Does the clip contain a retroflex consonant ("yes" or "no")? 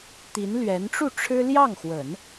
yes